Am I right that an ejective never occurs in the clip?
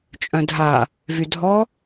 no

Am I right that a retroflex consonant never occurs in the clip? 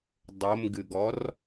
yes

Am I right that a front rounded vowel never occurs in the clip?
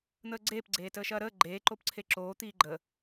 yes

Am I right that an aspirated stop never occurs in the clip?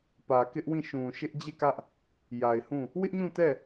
yes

